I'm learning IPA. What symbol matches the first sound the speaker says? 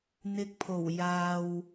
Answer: n̪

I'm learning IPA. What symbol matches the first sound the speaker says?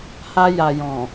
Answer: h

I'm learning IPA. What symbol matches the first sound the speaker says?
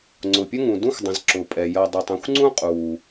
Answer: ŋ͡ǀ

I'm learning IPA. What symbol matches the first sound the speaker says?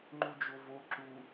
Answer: ŋ͡ǃ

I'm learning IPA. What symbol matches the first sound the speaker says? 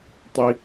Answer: tˤ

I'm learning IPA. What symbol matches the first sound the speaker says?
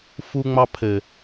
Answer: f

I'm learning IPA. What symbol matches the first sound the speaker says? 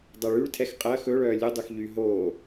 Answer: dˤ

